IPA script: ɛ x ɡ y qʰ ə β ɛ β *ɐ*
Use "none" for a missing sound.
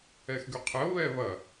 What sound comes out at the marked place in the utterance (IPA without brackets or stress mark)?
ɐ